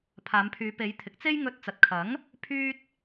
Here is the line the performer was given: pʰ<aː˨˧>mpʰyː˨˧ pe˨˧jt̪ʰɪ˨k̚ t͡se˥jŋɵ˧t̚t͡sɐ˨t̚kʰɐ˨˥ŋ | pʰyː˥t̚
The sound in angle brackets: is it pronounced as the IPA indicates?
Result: yes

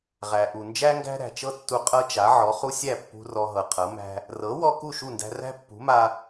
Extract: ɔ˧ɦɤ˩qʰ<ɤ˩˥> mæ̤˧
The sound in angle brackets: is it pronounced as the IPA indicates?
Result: yes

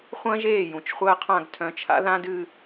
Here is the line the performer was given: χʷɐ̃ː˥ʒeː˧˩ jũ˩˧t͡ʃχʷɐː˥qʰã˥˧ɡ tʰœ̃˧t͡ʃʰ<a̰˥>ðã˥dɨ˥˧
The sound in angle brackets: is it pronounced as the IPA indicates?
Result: yes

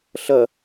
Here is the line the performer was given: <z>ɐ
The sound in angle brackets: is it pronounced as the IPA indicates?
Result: no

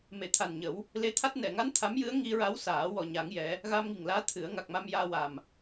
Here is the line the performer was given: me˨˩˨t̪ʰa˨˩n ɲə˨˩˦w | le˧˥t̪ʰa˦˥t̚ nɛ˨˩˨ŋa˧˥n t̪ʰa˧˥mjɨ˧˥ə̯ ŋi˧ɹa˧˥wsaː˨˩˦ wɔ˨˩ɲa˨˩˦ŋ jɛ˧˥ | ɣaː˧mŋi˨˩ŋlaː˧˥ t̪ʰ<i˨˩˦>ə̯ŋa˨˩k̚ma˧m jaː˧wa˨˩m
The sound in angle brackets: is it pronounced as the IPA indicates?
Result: no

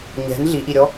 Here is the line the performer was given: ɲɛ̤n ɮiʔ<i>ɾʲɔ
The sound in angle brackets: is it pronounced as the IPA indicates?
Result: yes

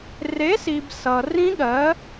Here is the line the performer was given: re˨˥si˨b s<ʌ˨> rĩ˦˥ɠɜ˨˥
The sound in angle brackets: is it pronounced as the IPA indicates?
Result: yes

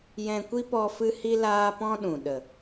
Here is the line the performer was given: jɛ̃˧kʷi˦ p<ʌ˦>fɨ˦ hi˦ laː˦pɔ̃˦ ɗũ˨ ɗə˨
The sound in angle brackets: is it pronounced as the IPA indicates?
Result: no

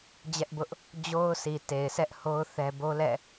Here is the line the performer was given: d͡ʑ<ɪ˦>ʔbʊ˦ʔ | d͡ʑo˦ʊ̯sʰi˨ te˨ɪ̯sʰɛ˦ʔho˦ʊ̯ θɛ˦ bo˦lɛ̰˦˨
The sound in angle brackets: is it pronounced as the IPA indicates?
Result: no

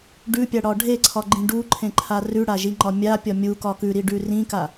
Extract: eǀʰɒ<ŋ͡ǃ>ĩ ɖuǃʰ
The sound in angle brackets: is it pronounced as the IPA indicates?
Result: no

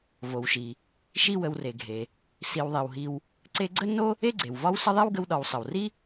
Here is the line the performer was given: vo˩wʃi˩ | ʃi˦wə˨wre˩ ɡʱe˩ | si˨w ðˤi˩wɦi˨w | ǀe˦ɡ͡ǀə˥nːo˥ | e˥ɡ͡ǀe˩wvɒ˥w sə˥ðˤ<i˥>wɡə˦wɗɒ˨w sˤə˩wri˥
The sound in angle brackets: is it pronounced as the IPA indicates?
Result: yes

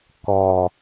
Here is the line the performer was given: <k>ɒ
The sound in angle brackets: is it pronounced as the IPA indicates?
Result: yes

